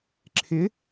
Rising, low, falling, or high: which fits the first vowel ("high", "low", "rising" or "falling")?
rising